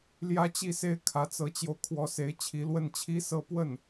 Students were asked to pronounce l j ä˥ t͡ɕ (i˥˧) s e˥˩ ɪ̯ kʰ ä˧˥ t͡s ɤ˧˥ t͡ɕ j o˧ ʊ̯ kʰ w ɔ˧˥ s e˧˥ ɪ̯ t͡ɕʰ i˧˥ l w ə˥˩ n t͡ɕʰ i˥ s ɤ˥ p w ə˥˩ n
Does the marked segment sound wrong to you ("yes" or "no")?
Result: no